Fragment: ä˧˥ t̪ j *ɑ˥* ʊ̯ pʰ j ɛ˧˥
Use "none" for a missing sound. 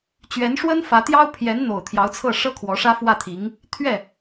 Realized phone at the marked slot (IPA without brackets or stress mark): ɑ˥